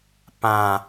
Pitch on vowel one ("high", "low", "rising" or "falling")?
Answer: low